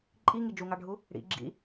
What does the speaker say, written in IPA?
ǃʼ i ŋ i d͡ʒ u ŋ ɑ ɖʱ u | ɽ ḭ ɡ͡ǁ ḭ

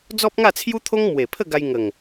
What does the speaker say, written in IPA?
d͡z ɔ˦ p̚ ŋ a˥˧ t͡sʰ j u˦ t̪ʰ o˦ ŋ m w e˨˩ pʰ ə˥˧ ɡ a˧ j ŋ ə˨˩ ŋ

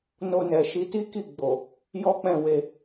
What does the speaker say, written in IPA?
n o˧ n ɛ˨ ʃ i˨˦ t i˦ k i˦˨ ɡ͡b o˨ | j ɔ˦ k͡p ɛ̃˦˨ w e˧

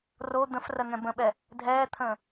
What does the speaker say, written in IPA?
r o d̪ ə̃ f r ɜ ŋ ɛ̃ b ə̃ ɓ ɛ | dʱ ɛː t̪ʰ ə̃ː

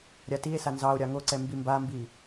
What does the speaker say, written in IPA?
ɾʲ a t i e̯ s a n z ɑ o̯ ɾʲ ɑ ŋ o ǀ ɛ m b i m b a m b i

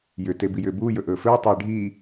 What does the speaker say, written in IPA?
j ʏ t e b i j ʏː b uː j ɵ ʔ ɵː f ɵː tˤ eː ɖʱ i

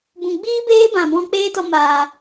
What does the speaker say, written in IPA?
b ũ˨ ɡ͡b iː˦ b eː˦ b ã˨ b ɔ̃˧ k͡p eː˦ t ɔ˧ m aː˨

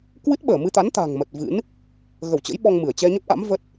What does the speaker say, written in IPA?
k w ɨ˦˥ t̚ ɓ əː˧˩ m ɨ˧ t̪ a˨˦ n t̪ a̤˨˩ ŋ m ə˨˩ t̚ v ɨ̰˧˥ n | ɣ ə˧˩ w t͡ɕ ə̰˧˥ j ɓ ɔ˧ ŋ m ɨ˧˩ ə̯ t͡ɕ ɛ˧ ɲ ə˦˥ p̚ ʔ a̰˧˥ m v ə˦˥ t̚

